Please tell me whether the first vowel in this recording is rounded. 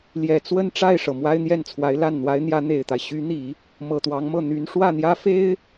no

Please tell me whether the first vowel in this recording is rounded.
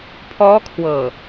yes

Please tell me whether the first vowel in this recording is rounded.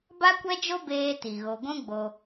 no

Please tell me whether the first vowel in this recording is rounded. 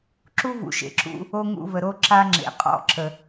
yes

